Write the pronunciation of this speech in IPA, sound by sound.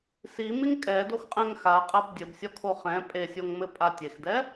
simiŋ kʼɛdoxqʼɛ̃ŋ xaqʼab dʲɘbsʲɔkʰo χɛ̃ pʼesʲoŋmɘpʼa tʲexdɛ

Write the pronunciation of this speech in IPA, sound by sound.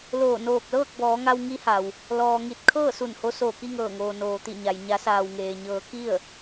loː˧˩ noː˧˩k̚lɤː˥˨k̚bɔː˩˧ŋa˧w ŋi˧˥ha˩w | lɔː˩ŋi˧˩t̚ kʰɤː˥˨su˧˩nho˧ soː˧˩ki˥˨ŋɤː˧˩ŋoː˩ noː˩t̪i˧˩ɲa˩j ɲa˩˧saː˩wŋeː˩ɲɤː˩˧ ki˥˨ə̯

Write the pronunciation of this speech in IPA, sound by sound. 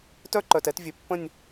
tœ˦˥ǃœ˩˧˩tɛ˧˥˧t vʲø˩˧˩pːə̃˥˧nʲ

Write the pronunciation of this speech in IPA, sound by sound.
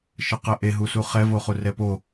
ʃəqəʔe ɦusuχɛ voχurɛpo

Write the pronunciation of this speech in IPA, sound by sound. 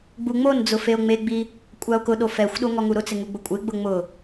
ɡ͡buŋ͡mond͡zʊ feo̯ŋ͡meɡ͡bi | kʷʼao̯kʊɗo fɛxʷɗo ŋɔŋuɾʊt͡sɪ ŋuɡ͡bʊkʷʼɪɡ͡bʊ ŋ͡mʊ

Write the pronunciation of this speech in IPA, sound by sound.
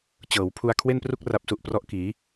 t͡ɕɤː˩˦wpʰu˧a̯ kʰwe˥˩npru˥˩k̚ ra˦˥p̚su˨˩ʔprɔ˦˥ʔkiː˩˦

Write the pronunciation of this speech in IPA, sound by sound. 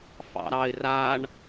fɑ̰ɾɑɪ̯ raɳ

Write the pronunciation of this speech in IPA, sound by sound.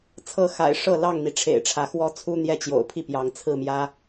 t͡sʰɤ˥˨ xa̰˨˩ɪ̯ʂɤ˥˨ lɑ˥˨ŋn̪i˩ ʈ͡ʂʰḛ˨˩ɪ̯ʈ͡ʂʰä˨˦xwɔ˦t͡sʰu˦ n̪jɛ˥˨t͡ɕjo̰˨˩ʊ̯pʰi˥˨pjɑ˨˦ŋ t͡sʰɹ̩˥˨mjä˦

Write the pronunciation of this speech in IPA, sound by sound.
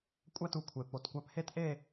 kʷʼæ˥˧tu˧kʷʰe˨˩ po˨˩tkʷæ˧phe˥˧t ʔe˥˧

